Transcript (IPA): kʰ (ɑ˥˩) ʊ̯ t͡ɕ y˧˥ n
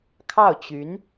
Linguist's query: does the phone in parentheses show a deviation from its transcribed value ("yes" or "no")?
no